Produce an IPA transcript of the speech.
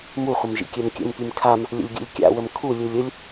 muχʷəm ʒḭkʲɛmkʲə̰mpim kʰam | lʲə̰lʲɡʲṵlʲkʲa̰wəm kʰulʲulʲ ʊlʲ

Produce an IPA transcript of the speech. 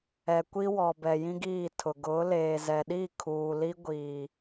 ɛ˨ kʷi˦wɔ˨bɛ˨ jĩ˦ɡiː˦˨tʰʊ˨ ɡʊ˨˦leː˨ zɛ˨ɗi˦˨kʰuː˨ li˦ɡʷiː˨

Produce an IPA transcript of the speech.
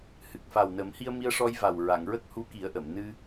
hɨ˨˩k̚fa˨˩wnə˨˩˦mhi˧ə̯ mi˧ə̯ʂɔ˧jva˨˩w ɹa˨˩˨ŋɹə˦˥k̚hu˧˥ ki˨˩˦ə̯ʔə˨˩˨m nɨ˧

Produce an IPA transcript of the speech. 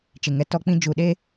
t͡ʃɪ˨ŋɛ˦ tɔ˦k͡pĩ˦ d͡ʒu˨ɗe˦

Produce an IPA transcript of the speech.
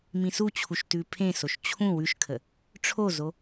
mĩsut͡ɕʰuʃ tʉpʰẽsoʃ t͡ɕʰũ wʉʃkʰə | ʈ͡ʂʰozo

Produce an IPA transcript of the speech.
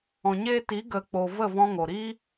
ɔ̃˨ɲeː˦ ti˨˦ɡə˨˦k͡poː˨ və˦˨vɔ̃˧ ŋo˨ɾi˦

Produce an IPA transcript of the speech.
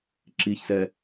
ǁiçsɛ

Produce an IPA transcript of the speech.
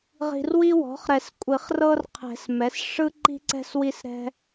ʁi̤˨rwi˦wɔ̤˩˥χ ɾɛ˨˩˦skʷʼi˨˩˦χrɤ˦rqʰɛ̤˨˩˦s mɛ˩˥s ʂɯ˦ ǃi̤˦ǀɛ̤˦swi˦sɾɛ̤˦

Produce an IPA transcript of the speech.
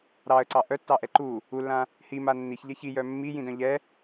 ɾɑə̯ǀɑ ʔœtːɑʔɛ ǃu | ulːã | hima nːiçʎɛ çijœ mːijĩdœ̃ ʎɛ

